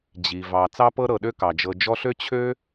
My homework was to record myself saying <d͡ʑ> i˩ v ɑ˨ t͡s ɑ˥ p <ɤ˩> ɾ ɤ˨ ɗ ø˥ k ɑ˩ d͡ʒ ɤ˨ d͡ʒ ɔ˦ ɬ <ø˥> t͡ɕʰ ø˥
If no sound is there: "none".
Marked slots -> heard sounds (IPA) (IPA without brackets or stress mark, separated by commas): d͡ʑ, ɤ˥, ø˥